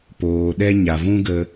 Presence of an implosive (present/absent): present